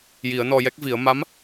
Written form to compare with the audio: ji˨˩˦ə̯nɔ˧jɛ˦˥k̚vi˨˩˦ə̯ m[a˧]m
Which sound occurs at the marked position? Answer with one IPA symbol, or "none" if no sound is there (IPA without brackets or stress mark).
a˧˥